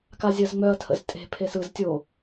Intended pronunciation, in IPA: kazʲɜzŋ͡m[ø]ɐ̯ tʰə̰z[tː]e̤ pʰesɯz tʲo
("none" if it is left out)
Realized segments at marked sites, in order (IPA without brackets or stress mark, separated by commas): œ, tʼ